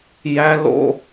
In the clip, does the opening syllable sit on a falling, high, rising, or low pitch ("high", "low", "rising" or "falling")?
high